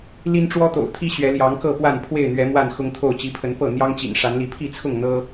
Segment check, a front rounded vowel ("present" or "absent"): absent